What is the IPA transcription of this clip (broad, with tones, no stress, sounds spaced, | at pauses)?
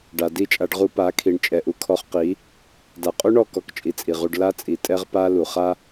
ɖ a˨ d i˦˨ t͡ʃʼ a˧ ɖ ʁ u˧ p a˨˦ kʰ i˨ ɳ t͡ʃʼ ɛ˨ ʔ u˨ kʰ ɔ˧ χ q i˨˦ | d a˨ qʼ u˦ ɳ ɔ˦˨ k ɔ˦ k t͡ʃʼ i˧ t͡sʼ i˨ ʁ u˧ ɖ l a˦ t͡sʼ i˨ tʼ ɛ˦ ʁ p a˦ l u˨ χ a˦